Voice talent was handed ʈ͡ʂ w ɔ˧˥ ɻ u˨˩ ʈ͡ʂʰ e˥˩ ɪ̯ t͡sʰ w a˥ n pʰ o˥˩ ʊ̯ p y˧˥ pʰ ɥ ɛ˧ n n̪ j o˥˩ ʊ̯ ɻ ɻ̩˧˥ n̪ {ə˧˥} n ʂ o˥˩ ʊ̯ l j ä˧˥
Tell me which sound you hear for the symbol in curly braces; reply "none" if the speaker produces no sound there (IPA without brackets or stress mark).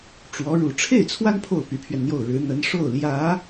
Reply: ə˧˥